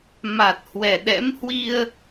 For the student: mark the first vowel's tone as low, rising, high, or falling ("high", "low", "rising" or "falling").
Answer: low